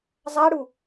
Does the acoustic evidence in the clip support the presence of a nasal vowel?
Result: no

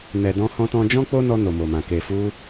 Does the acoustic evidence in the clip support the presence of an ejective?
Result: no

